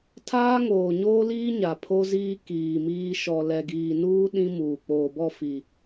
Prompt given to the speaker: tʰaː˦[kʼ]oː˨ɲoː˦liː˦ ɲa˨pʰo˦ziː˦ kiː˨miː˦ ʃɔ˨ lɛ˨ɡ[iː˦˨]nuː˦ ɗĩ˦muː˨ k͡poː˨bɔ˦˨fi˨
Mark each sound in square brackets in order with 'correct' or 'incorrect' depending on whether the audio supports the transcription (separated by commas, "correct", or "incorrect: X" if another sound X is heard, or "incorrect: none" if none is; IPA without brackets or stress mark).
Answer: incorrect: ŋ, incorrect: iː˨